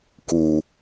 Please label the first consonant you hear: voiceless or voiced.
voiceless